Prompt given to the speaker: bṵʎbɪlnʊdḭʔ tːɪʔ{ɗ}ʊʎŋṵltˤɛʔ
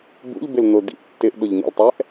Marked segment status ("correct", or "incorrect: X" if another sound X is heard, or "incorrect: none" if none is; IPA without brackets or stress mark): correct